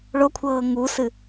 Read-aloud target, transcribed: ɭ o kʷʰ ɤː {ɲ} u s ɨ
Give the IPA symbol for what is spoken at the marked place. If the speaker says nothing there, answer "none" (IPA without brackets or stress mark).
ŋ